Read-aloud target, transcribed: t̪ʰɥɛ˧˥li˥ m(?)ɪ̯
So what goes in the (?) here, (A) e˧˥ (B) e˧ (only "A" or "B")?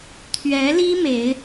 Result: A